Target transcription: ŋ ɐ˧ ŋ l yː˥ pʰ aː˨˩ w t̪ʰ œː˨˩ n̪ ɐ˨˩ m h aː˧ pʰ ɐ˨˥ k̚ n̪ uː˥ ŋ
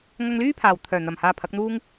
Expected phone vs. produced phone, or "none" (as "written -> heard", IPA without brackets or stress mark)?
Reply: none